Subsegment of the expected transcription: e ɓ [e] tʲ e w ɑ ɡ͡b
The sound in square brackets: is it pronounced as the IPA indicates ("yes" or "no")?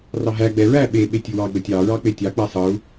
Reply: yes